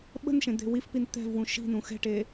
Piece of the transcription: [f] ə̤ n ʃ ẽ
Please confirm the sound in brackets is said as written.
no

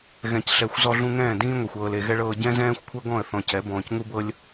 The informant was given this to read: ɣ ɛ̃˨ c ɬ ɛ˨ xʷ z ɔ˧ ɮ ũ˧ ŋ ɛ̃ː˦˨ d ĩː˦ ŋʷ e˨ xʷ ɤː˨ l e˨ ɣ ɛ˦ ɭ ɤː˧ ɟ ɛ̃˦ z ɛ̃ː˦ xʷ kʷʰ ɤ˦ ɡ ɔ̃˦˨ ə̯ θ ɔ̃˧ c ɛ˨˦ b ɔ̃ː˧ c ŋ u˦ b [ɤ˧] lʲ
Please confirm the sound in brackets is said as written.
no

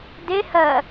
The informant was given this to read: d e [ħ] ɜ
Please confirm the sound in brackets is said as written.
no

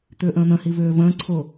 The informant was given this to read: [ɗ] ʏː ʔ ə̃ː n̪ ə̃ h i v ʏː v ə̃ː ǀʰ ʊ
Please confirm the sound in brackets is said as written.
no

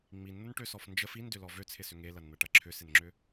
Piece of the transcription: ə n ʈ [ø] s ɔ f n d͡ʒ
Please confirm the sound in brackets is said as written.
yes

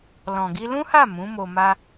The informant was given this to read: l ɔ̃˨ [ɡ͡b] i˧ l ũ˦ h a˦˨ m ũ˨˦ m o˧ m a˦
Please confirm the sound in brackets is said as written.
no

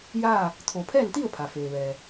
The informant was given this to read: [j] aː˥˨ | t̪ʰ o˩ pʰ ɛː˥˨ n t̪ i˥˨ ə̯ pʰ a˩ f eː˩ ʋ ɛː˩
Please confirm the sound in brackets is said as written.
yes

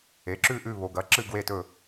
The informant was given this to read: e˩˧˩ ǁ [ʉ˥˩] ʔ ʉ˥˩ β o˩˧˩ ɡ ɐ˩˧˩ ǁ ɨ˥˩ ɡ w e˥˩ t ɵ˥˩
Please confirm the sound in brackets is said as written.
yes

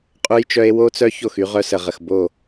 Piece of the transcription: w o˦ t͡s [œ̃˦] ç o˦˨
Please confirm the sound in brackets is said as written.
no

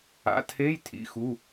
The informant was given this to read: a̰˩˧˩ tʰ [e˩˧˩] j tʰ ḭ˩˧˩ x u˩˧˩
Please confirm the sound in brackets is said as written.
no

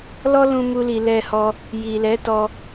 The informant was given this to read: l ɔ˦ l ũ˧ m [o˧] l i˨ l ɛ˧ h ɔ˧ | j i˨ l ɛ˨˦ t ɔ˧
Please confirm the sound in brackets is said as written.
no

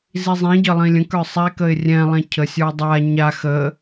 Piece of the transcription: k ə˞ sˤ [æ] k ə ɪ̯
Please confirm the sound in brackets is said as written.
yes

